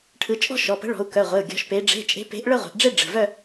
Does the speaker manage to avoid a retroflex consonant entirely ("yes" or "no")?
no